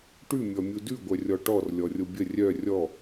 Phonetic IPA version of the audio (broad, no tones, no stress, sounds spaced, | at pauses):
ʈ ʉ mʲ ɔ mʲ u d ʉ ɡʷ œ rʲ ɔ ʈ ɔ r lʲ ɔ rʲ o bʲ ə rʲ œ rʲ ɔ